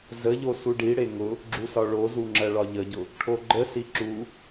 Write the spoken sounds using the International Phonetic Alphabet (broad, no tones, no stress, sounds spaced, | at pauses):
z ə ʎ o s u ɖ i ɽ e ŋ ʊ | ɡ͡ǁ u s ɒ ɭ o z u ŋ͡ǁ ɜ ɭ ɒ ʎ ə ɟ ʊ | ʈʰ o ɡ͡ǃ ə s i ǁ u